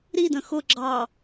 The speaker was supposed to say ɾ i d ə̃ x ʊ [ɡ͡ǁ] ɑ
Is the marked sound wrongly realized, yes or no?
no